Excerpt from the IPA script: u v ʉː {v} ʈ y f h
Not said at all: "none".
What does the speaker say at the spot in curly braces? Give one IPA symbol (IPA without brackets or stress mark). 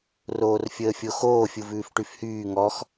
f